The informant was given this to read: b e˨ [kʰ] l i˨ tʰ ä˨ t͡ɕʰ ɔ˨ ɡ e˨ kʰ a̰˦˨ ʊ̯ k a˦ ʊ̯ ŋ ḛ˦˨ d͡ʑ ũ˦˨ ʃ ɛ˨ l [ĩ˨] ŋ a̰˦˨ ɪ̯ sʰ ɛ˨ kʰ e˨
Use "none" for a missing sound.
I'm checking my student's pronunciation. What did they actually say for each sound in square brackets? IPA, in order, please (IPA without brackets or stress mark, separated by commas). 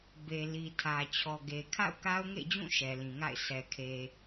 none, ĩ˨